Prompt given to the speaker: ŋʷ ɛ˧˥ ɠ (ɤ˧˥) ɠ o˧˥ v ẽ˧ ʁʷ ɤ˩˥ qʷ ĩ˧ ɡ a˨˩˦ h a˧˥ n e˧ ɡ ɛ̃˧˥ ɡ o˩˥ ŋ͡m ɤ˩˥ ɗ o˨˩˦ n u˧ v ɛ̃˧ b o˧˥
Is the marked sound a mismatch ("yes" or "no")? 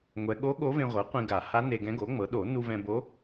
yes